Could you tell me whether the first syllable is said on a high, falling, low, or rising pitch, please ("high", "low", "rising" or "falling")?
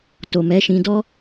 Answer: low